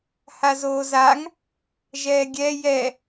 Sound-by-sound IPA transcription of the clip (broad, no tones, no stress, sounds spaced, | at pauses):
h a z oː z a ŋ | ʒ ɛː ɡʲ ɛ j ɛ